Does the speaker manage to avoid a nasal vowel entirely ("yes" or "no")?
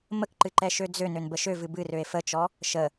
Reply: yes